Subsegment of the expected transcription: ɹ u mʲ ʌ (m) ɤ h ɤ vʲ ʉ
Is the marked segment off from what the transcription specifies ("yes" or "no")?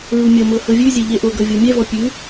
no